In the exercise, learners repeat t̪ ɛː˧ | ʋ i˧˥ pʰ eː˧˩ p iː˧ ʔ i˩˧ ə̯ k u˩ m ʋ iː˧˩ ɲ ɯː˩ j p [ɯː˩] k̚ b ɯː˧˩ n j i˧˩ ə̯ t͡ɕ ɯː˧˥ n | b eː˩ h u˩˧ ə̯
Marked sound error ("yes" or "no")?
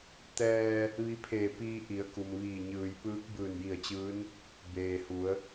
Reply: yes